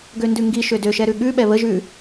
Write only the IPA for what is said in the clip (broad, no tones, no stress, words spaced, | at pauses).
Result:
ɡøndʉŋɡi ʃødø ʃɛɾʉɠʉɓɛ βəʒʉ